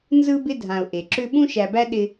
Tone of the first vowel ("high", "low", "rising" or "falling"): high